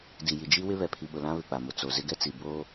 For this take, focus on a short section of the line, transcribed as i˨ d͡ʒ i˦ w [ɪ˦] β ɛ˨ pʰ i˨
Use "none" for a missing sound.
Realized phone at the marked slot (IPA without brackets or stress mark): ɪ˦